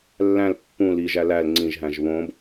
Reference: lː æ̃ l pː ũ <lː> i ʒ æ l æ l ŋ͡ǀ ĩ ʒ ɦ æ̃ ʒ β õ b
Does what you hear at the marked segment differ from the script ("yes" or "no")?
yes